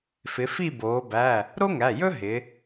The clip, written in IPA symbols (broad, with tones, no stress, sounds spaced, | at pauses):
f ɪ˩˧ f i˦˨ b oː˩˧ b æ˩˧˩ | ɾ o˥ ŋ æ˩˧˩ j ɵ˥ ɦ ɪ˩˧